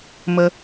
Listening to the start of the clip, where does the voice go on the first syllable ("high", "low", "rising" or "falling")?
high